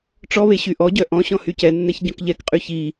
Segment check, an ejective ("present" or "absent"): present